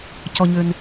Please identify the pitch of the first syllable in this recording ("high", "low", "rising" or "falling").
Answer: low